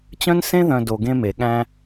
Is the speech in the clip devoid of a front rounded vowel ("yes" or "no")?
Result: no